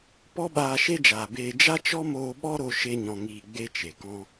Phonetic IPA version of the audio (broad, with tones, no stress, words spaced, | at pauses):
pɔ˦ɓaː˧ʃe˦d͡ʒaː˨ beː˧ d͡ʒa˦t͡ʃɔ˦moː˧ ɓɔ˦ɾo˧ ʃe˦ɲɔ̃˧ŋiː˧ɡ͡be˦ t͡ʃe˨kɔ̃˦